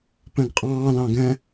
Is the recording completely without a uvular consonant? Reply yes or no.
no